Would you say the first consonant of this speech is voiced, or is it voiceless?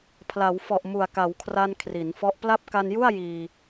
voiceless